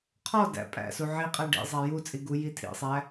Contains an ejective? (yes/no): yes